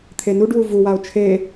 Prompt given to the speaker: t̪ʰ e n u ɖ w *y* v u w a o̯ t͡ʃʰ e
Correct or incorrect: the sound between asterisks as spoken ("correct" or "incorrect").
incorrect